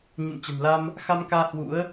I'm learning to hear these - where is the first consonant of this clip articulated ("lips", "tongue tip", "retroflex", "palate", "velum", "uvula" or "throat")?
palate